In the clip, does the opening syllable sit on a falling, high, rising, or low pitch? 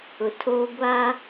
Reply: low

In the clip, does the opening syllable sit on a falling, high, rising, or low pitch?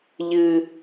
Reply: high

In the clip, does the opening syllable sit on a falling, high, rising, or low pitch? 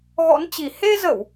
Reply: rising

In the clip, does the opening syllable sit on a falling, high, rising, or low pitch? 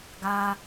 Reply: high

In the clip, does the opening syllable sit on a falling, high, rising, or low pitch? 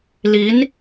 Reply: rising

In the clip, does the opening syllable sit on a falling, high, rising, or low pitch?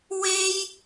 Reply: high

